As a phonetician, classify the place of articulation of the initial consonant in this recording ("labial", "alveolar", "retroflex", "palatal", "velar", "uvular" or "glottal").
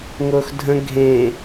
velar